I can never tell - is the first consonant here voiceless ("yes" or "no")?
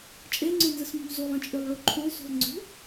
yes